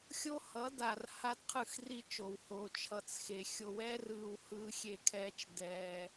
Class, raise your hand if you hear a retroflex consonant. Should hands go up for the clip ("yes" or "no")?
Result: no